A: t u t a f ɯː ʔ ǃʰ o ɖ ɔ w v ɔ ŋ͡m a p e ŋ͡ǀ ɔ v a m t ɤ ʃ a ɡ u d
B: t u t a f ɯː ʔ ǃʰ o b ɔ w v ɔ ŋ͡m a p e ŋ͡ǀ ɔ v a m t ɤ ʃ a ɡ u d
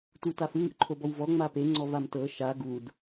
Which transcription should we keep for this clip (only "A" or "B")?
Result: B